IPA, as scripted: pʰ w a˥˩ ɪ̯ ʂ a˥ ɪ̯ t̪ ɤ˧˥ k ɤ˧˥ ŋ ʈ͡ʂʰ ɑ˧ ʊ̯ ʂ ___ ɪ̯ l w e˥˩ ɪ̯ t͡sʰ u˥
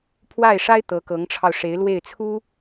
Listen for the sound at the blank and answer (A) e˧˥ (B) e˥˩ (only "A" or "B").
A